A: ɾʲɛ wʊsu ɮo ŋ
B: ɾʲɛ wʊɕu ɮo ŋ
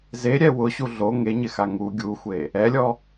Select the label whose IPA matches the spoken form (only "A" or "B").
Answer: B